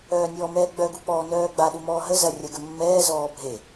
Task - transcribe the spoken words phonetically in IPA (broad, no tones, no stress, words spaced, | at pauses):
œːnʲɔːmɛːɡ͡bœ ɡuk͡pɔːnœːɡ͡ba ɗumɔːɦə zɐ rʲɐɡəmːɛː zɔːbʱe